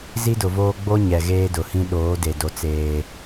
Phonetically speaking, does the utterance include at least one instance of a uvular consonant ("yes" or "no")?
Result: no